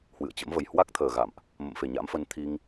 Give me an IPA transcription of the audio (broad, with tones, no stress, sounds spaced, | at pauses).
h w ɨ̰˧˨ ə̯ t͡ɕ ə̰˧˥ m v ə˨˩ j h w a˦˥ k̚ t̪ʰ əː˨˩ ɣ a̰˧˨ m ʔ | m ə̰˧˨ m f e˧˩ ɲ a̰˧˥ m f ə˨˦ n t̪ʰ i˧ ŋ